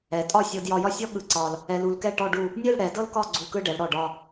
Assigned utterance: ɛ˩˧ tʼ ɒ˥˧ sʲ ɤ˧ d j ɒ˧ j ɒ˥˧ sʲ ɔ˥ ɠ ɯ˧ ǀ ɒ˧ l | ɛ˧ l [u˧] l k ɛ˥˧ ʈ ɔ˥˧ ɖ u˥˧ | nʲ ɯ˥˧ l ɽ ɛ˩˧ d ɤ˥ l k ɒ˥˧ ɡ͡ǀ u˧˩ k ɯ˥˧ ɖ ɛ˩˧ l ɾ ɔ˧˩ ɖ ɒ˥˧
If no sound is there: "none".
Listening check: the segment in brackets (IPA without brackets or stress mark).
u˧